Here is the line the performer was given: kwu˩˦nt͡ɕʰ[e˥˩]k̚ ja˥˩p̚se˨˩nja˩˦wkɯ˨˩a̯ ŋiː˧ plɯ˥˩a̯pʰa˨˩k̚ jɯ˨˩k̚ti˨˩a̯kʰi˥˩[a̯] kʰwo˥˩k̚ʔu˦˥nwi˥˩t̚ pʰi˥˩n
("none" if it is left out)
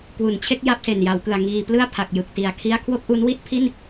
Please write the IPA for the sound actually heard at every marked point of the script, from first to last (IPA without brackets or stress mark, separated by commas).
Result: e˥˩, a̯